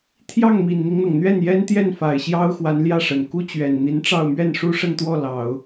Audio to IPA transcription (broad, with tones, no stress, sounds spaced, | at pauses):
t̪ʰ j ɑ˥˩ ŋ m i˨˩ n n̪ i˦ ŋ n̪ ɤ˩ ŋ n̪ ɥ ɛ˥˩ n j ɛ˥ n t̪ j ɛ˥˩ n f a˨˩ ɪ̯ ɕ j ɑ˥ ʊ̯ x w a˧˥ n l j ä˥˩ ʂ ə˨˩ n k u˥ t͡ɕ ɥ ɛ˨˩ n n̪ i˧˥ n ʈ͡ʂ ɑ˥˧ ʊ̯ m ɥ ɛ˥˩ n ʂ u˥ ʂ ə˥˧ n t̪ w ɔ˥˩ l ɑ˨˩˦ ʊ̯